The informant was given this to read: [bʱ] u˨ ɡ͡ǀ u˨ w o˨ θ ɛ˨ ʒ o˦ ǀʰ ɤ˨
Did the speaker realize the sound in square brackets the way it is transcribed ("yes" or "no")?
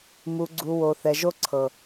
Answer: no